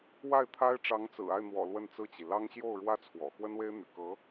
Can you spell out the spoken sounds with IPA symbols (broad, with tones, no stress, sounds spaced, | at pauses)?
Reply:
w a˥˩ ɪ̯ t̪ʰ a˥ ɪ̯ ʈ͡ʂ ɑ˧˥ ŋ t͡s ɹ̩˨˩ a˥˩ ɪ̯ n̪ w ɔ̰˨˩ l w ə˥˧ n t͡s ɹ̩˥˩ t͡ɕ i˩ l ɑ˥ ŋ ɕ j o˥˩ ʊ̯ ɻ w ä˥ t͡sʰ w ɔ̰˨˩ x w ə˥ n w e˥ ɪ̯ n̪ y̰˨˩ k ɤ˧˥